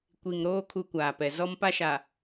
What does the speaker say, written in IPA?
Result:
kʷ i˨ ŋ ɾ oː˦ kʰ u˦ kʷ aː˨ p ɛ˨ z ɔ˦ m p a˦ ʃ a˨

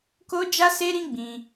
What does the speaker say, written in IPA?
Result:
k o˦ d͡ʒ a˦ s e˦ ɾ ĩ˦ ɡ͡b ĩ˧

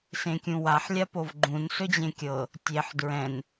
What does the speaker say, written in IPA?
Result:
s ẽ kʲ ũ w a ħ lʲ a p o v ɡ͡ǃ ũ n s ɵ d͡ʑ ẽ kʲ ɤ | tʲ e ħ d ɹ ɛ̃ n

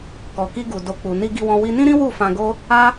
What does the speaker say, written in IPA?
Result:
k ɔ˨ k i˧ ɡ u˨ d o˨ k͡p u˨ n i˧ ɡ i˧ w ɔ̃˧ w i˧ n ĩ˦ ɾ ĩ˦ w u˦˨ f ã˧ ɡ o˦ | a˦

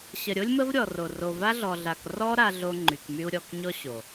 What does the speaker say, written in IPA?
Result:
ɕ ə˨ ɾʲ o˦ lʲ m ə˦ v ɾʲ ɔ˨ r o˨ r o˨ v a˦ ɮ ɔ˨ ɮ a˨ k r ɔ˦ ɾ a˦ ɮ o˦ ŋ͡ǃ y˨ k m y˦ u̯ ɾʲ ɔ˨ k ɲ ɔ˦ ɕ o˨

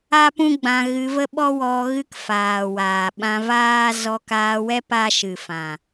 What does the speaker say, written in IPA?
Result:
a˦ p ũ˦ ɡ͡b ã˧ ɣ ɨ˧ v ə˦ ɓ ɔ˦ w ɔ˧ ɣ ɨ˦ k f aː˨ w aː˨ ɓ ã˧ v aː˦ z ɔ˧ k aː˧ w ɛ˦ p a˦ ʃ ɨ˨ f ã˨

